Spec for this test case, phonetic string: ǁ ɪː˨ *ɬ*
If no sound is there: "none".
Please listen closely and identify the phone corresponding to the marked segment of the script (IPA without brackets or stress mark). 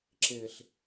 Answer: ɬ